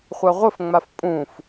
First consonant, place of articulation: uvular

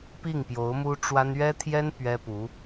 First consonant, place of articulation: labial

